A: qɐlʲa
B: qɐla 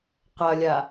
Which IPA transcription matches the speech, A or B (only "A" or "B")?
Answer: A